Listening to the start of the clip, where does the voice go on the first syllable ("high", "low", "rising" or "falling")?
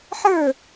falling